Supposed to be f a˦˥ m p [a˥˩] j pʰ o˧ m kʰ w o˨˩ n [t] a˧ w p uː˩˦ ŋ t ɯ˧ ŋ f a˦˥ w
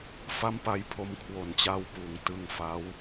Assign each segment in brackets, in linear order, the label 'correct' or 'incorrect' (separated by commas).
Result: incorrect, incorrect